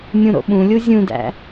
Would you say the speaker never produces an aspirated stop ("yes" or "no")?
yes